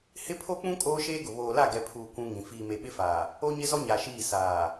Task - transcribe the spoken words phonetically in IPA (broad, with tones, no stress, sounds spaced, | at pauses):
h ɪ˦ pʰ o˦ k͡p ũ˦ kʼ oː˦ ʃ eː˦ ɡ ʊ˨ β oː˨ l a˦˨ ɡ ɛ˨ pʰ uː˨ kʷ ũ˦ ŋ ĩ˨ f iː˨ m e˨ ɓ ɪ˦ f aː˨ | o˦ ɲ ɪ˦ z ɔ˦ ɲ a˨ ʃ iː˦˨ s aː˨